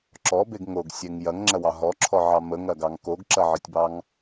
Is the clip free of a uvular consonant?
yes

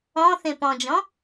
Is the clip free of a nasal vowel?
no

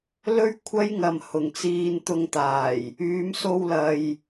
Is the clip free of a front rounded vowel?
no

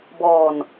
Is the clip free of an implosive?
yes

